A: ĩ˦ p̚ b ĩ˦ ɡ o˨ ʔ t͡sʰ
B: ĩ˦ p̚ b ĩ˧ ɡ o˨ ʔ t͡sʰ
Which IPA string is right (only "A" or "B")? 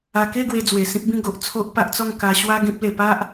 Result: A